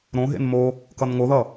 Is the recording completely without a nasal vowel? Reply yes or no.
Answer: no